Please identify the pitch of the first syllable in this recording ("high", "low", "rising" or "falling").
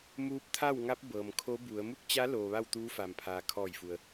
rising